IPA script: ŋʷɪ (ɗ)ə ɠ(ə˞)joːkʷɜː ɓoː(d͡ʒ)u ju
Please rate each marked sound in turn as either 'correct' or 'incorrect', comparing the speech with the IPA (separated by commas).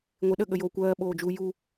correct, incorrect, correct